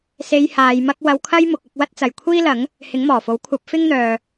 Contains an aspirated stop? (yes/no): yes